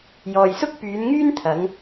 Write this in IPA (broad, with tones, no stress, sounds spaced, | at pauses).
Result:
j ɔː˨ j s ʊ˥ k̚ p yː˨˧ n ŋ yː˥ n t̪ʰ ɐ˨˧ ŋ